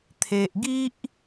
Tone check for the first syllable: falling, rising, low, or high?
low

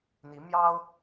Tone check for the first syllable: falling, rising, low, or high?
rising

